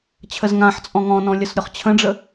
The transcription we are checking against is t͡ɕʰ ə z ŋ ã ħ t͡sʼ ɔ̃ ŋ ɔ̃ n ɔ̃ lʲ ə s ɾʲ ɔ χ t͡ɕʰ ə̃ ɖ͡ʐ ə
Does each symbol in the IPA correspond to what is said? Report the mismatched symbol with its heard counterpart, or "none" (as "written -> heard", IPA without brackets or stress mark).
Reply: none